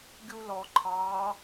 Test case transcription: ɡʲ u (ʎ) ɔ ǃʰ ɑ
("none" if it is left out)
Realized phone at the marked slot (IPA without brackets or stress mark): l